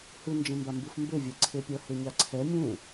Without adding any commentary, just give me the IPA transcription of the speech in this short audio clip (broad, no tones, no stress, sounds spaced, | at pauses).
h ɯ n d͡ʒ ẽ m b a m b ɯ f m b e vʲ ɛ ǀʰ e pʲ ʌ h e ɲ a ǀʰ ɛ mʲ ẽ